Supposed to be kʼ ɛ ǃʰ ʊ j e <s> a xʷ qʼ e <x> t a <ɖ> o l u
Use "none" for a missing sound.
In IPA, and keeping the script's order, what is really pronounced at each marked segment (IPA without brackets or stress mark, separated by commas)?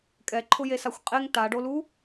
s, ŋ, ɖ